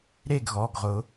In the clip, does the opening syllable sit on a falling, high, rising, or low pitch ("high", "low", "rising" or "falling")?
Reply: falling